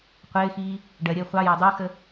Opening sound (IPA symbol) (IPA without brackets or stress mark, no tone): qʷ